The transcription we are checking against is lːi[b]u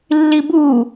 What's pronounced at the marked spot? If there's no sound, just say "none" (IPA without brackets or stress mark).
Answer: b